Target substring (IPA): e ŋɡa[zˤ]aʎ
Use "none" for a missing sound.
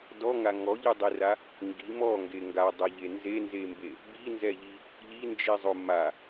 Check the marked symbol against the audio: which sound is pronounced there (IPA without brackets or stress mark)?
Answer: dˤ